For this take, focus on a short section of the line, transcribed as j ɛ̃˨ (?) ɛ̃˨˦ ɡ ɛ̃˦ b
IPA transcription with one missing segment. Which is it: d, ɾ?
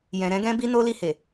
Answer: ɾ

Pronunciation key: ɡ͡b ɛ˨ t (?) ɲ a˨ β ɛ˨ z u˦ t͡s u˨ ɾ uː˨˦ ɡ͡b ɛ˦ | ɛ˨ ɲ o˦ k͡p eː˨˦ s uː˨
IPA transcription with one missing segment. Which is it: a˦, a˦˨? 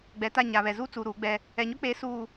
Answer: a˦˨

